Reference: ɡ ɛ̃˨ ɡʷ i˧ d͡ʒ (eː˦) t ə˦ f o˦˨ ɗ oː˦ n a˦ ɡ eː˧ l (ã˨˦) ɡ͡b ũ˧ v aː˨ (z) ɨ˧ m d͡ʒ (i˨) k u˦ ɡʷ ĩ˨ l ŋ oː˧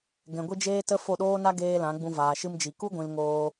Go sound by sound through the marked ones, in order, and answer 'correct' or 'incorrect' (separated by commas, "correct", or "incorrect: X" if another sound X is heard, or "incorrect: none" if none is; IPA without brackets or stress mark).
correct, correct, incorrect: ʃ, correct